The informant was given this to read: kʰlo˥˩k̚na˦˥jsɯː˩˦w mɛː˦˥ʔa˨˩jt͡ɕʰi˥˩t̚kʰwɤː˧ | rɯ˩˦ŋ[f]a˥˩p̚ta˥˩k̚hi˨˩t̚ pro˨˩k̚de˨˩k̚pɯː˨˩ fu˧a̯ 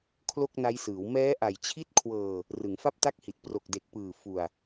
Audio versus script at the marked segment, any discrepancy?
no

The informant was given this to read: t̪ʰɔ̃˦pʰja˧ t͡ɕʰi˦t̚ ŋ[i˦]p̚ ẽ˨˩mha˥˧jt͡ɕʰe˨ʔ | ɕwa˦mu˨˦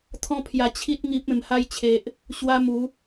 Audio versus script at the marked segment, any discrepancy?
no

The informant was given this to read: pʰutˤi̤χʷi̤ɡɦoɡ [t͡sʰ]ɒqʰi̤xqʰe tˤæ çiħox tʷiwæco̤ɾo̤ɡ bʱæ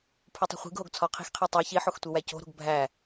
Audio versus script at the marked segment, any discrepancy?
no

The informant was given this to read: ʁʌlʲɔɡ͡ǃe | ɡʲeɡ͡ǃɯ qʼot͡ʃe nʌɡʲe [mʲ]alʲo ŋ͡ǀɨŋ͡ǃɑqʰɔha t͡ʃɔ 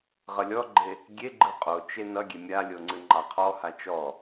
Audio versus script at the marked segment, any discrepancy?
no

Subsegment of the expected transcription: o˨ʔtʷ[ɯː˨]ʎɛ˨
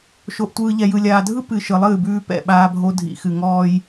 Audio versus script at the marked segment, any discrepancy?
no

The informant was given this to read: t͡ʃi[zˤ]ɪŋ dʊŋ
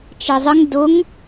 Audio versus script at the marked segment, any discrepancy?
no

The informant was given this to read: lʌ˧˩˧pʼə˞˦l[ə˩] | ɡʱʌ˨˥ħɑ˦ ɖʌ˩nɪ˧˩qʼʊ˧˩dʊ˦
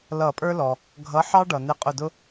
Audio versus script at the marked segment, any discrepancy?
yes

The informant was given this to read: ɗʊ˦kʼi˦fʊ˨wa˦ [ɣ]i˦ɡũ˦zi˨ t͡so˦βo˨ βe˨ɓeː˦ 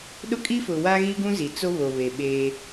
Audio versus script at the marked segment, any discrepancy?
no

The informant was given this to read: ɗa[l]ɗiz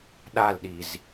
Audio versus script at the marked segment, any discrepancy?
no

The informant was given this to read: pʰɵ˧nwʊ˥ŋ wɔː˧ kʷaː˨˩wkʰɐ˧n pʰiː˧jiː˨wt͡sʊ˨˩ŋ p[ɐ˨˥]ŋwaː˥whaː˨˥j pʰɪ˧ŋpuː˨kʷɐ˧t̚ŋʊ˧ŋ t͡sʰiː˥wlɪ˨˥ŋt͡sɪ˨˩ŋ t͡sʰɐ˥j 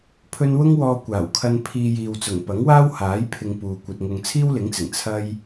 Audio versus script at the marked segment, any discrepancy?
no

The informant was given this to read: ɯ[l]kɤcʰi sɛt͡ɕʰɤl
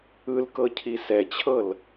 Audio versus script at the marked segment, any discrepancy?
no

